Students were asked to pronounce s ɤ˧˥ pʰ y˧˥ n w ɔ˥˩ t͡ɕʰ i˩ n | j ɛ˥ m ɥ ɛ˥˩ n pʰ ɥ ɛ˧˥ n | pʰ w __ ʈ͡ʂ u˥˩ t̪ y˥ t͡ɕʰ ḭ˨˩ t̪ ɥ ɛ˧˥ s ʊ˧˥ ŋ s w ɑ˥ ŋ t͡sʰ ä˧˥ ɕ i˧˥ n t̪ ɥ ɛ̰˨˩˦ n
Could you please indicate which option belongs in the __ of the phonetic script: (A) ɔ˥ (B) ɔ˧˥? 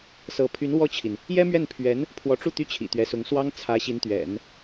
B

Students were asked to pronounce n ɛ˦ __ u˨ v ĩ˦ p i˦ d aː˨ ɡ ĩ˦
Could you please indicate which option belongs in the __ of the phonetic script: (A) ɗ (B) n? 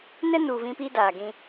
B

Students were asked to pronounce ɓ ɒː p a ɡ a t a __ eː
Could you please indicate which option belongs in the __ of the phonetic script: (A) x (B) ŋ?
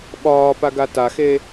A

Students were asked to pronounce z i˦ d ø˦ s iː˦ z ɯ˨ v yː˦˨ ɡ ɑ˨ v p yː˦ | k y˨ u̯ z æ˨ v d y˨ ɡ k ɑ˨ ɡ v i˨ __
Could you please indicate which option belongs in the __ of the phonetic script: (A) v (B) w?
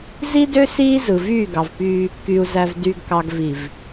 A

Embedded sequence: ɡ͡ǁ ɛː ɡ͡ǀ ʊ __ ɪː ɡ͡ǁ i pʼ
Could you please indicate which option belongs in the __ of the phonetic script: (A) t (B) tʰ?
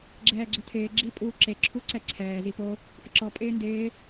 B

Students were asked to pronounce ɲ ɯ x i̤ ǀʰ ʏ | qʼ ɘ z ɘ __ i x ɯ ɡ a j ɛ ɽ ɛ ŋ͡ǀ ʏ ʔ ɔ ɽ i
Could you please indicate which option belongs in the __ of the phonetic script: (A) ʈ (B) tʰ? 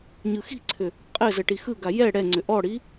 A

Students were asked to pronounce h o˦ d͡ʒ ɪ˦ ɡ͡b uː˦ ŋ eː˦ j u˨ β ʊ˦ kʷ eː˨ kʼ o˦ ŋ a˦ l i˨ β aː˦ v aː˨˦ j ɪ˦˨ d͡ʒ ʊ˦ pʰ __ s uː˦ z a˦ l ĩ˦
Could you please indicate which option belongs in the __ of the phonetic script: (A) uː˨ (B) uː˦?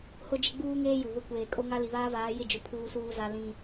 B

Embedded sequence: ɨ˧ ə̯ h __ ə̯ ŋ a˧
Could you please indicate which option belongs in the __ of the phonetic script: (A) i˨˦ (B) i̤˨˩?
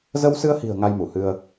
B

